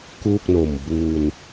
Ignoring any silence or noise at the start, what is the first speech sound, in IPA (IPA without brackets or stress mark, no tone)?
k